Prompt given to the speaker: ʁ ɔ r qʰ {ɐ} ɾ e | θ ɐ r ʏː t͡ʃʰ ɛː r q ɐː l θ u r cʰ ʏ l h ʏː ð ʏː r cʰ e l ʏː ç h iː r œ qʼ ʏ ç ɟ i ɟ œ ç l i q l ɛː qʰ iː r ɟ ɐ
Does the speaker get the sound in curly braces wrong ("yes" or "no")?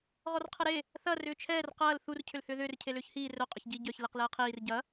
no